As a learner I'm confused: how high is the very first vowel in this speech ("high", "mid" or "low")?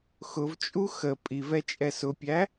high